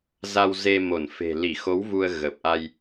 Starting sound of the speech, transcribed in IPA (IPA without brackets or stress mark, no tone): z